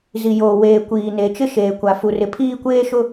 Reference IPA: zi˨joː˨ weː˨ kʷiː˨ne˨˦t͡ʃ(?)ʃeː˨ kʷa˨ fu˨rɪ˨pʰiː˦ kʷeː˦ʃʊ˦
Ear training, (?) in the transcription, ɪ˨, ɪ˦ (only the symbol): ɪ˦